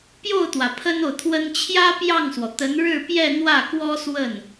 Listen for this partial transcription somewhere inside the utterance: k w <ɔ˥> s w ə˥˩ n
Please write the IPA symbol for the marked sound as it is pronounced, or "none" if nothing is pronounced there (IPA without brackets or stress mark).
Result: ɔ˥